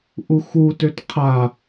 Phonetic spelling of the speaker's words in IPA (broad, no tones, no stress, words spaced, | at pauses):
ʔuxu tøtqʰa